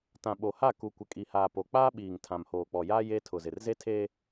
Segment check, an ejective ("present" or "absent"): present